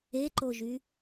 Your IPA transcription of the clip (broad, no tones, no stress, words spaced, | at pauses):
eǃoʒy